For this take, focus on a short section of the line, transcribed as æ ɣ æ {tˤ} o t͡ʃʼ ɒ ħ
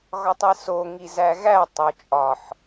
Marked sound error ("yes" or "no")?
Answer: no